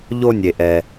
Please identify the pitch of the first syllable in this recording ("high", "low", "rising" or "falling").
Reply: high